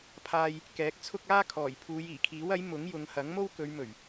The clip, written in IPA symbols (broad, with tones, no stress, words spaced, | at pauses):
pʰaː˧j | kɛː˨˥k̚t͡sʰʊ˥k̚ aː˥kʰɔː˨˩j pʰuː˨˧jiː˨˩kʰiː˨˥wɐ˨˥j mʊ˨˥ŋjʊ˨˧ŋhɐ˨˥ŋ mo˥wkɵ˨˧ɥ mɵ˨˩ɥ